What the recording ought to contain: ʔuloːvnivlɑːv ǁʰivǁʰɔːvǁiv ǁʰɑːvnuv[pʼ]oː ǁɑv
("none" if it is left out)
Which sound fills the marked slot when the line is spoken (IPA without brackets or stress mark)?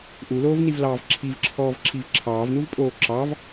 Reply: pʼ